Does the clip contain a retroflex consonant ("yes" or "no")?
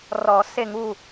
no